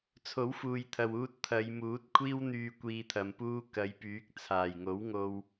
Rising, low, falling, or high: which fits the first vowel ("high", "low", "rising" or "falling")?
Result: rising